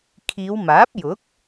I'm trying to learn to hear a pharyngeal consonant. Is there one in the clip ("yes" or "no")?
no